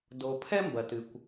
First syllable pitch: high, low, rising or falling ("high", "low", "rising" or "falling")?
low